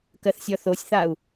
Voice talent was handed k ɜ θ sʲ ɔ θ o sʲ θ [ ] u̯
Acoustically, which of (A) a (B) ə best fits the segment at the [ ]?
A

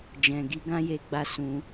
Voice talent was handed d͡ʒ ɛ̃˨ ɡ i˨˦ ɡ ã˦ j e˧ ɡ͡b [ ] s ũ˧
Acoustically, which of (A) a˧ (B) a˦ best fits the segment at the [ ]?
A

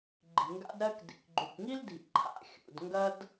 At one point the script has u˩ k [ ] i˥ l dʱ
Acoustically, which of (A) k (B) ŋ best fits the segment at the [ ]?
B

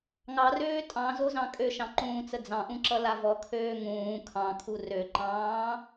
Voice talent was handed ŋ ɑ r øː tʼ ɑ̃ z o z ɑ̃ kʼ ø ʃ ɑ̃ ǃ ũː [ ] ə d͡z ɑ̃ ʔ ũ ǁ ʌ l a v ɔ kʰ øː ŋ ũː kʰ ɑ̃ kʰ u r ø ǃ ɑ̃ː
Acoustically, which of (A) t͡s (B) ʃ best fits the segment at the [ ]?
A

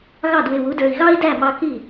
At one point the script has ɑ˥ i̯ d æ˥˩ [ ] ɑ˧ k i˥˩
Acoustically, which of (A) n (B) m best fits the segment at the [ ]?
B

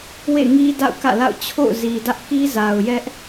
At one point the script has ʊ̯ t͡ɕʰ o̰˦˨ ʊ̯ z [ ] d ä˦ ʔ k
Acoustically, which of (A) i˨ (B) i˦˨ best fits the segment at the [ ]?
A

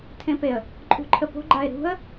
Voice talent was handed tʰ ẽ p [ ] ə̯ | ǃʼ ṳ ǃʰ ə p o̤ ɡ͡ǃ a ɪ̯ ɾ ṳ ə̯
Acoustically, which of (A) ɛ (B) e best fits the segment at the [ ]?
B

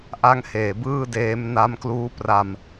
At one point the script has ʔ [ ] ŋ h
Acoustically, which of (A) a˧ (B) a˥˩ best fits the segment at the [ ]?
B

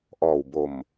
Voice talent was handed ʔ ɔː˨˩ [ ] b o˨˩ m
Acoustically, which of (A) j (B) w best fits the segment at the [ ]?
B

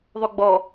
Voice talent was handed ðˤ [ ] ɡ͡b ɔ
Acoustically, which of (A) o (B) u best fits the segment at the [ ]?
B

